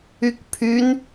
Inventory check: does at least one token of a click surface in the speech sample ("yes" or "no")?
no